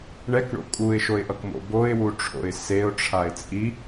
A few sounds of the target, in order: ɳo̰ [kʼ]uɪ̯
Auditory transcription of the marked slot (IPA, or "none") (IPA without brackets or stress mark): kʼ